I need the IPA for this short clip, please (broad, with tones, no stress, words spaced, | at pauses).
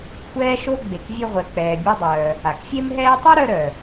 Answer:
kʷʰɛː˦ʃo˦ ɡ͡be˨kvʲø˦ʁʷɛ˨k͡pɛː˨ bʲɛ˦dˤœː˨ | a˩kfʲe˦mɦɛː˦tˤy˥ ɾœ˦ɾœ˩